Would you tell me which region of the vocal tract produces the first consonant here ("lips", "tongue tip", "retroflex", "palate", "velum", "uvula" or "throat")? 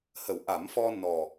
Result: throat